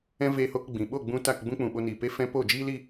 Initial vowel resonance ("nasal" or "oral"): nasal